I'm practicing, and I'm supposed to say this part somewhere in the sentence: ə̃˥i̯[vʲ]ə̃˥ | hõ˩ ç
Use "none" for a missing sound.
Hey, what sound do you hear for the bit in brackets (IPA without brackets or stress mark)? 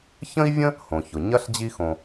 vʲ